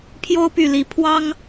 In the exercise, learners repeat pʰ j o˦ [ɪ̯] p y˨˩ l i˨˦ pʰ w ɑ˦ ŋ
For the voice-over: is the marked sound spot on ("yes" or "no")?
no